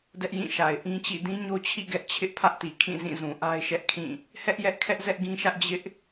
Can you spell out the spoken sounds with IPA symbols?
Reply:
dɛ˦ʔjĩ˦˨ʃa˨ɪ̯ ʔĩ˦t͡ɕḭ˦˨ dĩ˦ɲo˦t͡ɕʰḭ˦˨ ɡɛ˦ʔ t͡ɕʰɪ˦ʔpʰä˦ʔti˨ kʰĩ˦˨zĩ˦˨zũ˨ ʔa˦ɪ̯ʃɛ˦ʔkʰĩ˦˨ | hɛ˦ʔjɛ˦ʔkʰɛ˦ʔ zɛ˦ʔɡĩ˦ʃä˦ʔ d͡ʑɪ˦ʔ

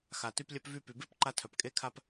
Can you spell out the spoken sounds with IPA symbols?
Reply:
xa˩ty˧plʲœ˧p vy˧py˩be˥pǃa˧ tʰœ˩pkʼe˧kʰa˧p

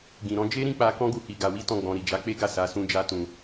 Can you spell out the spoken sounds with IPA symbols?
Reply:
ɡĩ˨ɾɔ̃˨˦ d͡ʒe˦ɾĩ˦˨k͡pa˧ kɔ̃˦ɡu˧hi˨ ɡa˧wi˦tɔ̃˦˨ɡ͡bɔ̃˧ ɾi˨d͡ʒa˨˦k͡pe˦ ɡa˦˨sa˨˦ sũ˦d͡ʒa˦tũ˧

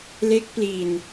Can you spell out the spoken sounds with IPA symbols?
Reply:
le˦˥k̚pli˧n

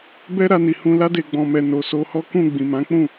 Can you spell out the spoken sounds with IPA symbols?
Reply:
bɛ˦ɾa˧ni˨hũ˧ la˧de˨ɡ͡bɔ̃˨mɛ˨ no˨ so˧hɔ˦ kũ˦˨ ɡ͡bĩ˨mã˨˦k͡pũ˦˨

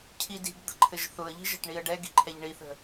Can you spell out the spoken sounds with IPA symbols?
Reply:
cʰidi̤ɡd̪ə̤ǃʰɘʒ θʊə̯ʎi̤ ʒə̤ʈɳiə̯ɖɛ ɡi̤ǃʰɛʎɳiθə̤

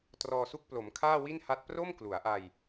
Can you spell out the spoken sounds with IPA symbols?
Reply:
trɔː˧su˦˥k̚ plo˩˦mkʰaː˥˩wi˥˩nha˦˥t̚ pro˥˩mklu˩˦a̯ʔa˧j

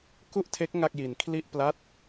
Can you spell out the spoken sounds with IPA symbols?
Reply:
ku˥˩ʔtʰe˦˥k̚ ŋa˥˩k̚ji˧n kʰli˥˩ʔpla˥˩t̚

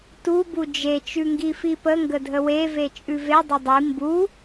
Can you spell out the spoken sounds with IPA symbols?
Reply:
tu bud͡ʒe t͡ʃʉŋɡifipə ŋɡədʱəwe vet͡ʃʼʉve dˤʊdˤi mbu

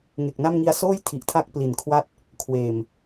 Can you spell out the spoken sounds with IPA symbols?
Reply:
ŋe˨˩k̚na˥˩m ŋi˧a̯soː˥˩jtʰi˨˩ʔtʰa˦˥k̚ pli˨˩nkʰwa˥˩t̚ | kʰweː˨˩m

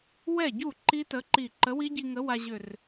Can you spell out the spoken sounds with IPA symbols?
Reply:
wɛ˥˩ɟu˥˩ ǃi˦˥tə˨˥ǃi˧˩ ǃə˨˥wi˦˥ɟi˧ŋə˨˥ wa˧ʑʏ˧˩r

